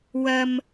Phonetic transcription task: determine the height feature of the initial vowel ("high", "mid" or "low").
low